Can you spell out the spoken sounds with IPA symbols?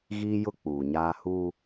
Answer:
ɣ iː˦ j ʊ˦ k͡p uː˨ ɲ aː˦ h u˦

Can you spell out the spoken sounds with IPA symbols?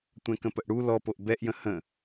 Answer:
tʷ ɛ̃ k ə̃ p ə ʔ ɽ u l ɔ p o ʔ b ɛ ʔ j ə̃ h ə̃

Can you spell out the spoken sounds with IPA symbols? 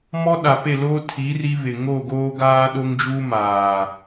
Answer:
m ɔ˦ ɗ a˨ p e˦˨ l oː˦ tʰ i˨˦ r i˦ β ɪ˨ ŋ o˦˨ ɡ oː˦ ɡ aː˦ ɗ o˦ ŋ d͡ʒ uː˦ m aː˨

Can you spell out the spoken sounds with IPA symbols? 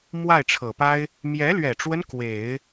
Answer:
m w a˥˩ ɪ̯ ʈ͡ʂʰ ɤ˨˩ p a˥ ɪ̯ | m j ɛ˧˥ l ɥ ɛ˨˩ ʈ͡ʂ w ə˦ n k w e˨˩˦ ɪ̯

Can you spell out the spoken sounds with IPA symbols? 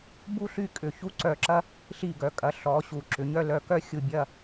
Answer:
b u˥ ɬ y˥˧ kʼ ʏ˧˩ ç u˥ ǀ œ˧˩ ǁ ɐ˥ | ɬ i˧˩ ɡ œ˩˧ kʼ ɐ˩˧ ɬ ɔ˩˧ ɕ u˩˧ ǁ ʏ˩˧ ɲ œ˥˧ l œ˧˩ k œ˥ xʲ u˧˩ bʲ ɐ˥˧

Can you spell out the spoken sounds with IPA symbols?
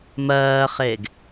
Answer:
m ɜː χ e ɡ

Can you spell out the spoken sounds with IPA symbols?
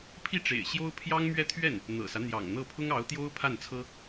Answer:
pʰ i˥˩ ʈ͡ʂ ḛ˨˩ ɪ̯ ɕ j o˥ ʊ̯ pʰ j ɑ˥ ŋ m ɥ ɛ˥˧ t̪ʰ ɥ ɛ˥˩ n | n̪ ɤ̰˨˩ s ä˦ n̪ j ɑ̰˨˩ ŋ n̪ ɤ˥˩ pʰ ʊ˥ ŋ ɑ˧˥ ʊ̯ t̪ j o˥ ʊ̯ pʰ a˥˩ n t͡sʰ ɤ˥

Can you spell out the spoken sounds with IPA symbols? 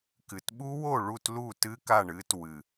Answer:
k ɨ˨˩ t ɓ u˦˥ w o˥˨ ɭ u˥˨ t l u˥˨ t ɨ˦˥ k a˥˨ ɳ ɨ˦˥ t w ɨ˨˩

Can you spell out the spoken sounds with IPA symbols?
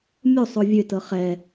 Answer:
mʲ o sˤ o vʲ ø t ɤ χ ɛ

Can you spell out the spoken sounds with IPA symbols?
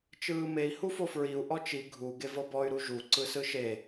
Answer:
t͡ʃ ɯː m e i̯ h u f o f ɹ i u̯ ʔ ɔ t͡ʃ i ɡʱ u ɡ e v ɤ b ɔ y̯ ɾ u ʒ u ǀ ɯ s ɯ ʃ e

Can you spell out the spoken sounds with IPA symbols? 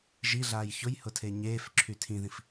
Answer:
ʒ i ɮ aː j ç ʊ j h ʊ tʰ e ɲ eː f ǁʰ y tʰ ĩ ð ĩ f

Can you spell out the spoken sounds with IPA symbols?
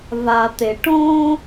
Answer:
v a˨ t̪ e˨ ʈ õː˦

